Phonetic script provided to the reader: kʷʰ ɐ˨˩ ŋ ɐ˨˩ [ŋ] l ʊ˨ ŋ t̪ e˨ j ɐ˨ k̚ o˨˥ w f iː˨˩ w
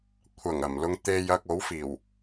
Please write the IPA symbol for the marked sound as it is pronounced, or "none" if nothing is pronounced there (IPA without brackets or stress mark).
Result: m